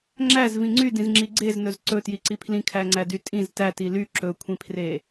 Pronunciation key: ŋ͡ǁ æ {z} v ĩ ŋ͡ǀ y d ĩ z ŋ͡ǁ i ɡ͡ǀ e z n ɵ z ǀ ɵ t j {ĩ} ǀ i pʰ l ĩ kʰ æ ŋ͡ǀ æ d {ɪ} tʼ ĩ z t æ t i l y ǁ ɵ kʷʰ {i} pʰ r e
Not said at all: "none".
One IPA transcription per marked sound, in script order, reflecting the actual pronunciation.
z, i, y, ĩ

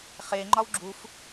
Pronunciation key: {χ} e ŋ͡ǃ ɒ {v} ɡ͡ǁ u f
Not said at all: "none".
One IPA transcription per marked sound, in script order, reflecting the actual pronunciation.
χ, w

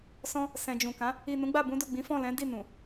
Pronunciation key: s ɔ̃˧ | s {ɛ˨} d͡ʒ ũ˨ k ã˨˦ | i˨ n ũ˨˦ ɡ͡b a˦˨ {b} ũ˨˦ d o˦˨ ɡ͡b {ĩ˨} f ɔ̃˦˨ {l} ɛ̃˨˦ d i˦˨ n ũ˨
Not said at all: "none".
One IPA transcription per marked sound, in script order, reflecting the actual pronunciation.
ɛ̃˨, b, ĩ˨˦, l

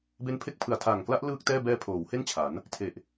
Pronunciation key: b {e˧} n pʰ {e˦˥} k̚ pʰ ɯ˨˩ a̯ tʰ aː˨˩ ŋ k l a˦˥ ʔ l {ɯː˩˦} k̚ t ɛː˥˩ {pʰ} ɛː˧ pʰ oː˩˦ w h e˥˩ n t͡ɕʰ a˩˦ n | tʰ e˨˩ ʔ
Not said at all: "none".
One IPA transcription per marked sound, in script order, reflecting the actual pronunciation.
e˦˥, e˦˥, ɯː˥˩, b

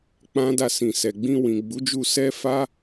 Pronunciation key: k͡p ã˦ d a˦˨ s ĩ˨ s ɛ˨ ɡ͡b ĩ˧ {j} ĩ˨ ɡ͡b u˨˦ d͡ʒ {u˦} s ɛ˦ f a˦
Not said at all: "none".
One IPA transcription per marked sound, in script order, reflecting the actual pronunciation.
w, u˧

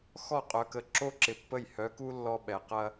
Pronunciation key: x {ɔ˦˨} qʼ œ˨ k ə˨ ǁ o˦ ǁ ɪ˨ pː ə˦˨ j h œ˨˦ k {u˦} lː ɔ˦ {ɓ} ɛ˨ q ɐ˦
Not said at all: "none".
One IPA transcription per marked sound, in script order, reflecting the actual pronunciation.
ɔ˦˨, u˦, ɓ

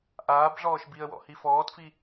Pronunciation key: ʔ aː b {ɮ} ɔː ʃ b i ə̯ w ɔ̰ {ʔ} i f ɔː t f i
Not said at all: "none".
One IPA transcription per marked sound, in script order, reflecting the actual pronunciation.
ɮ, h

